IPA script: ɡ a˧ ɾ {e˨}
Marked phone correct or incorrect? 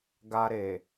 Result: correct